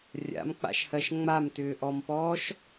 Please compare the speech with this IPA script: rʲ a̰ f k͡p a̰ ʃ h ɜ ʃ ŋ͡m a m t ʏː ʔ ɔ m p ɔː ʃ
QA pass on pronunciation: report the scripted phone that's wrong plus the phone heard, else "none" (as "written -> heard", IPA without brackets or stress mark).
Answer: f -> m